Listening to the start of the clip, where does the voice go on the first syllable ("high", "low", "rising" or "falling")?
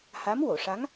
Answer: rising